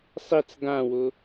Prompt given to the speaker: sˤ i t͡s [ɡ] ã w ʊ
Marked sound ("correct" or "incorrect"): correct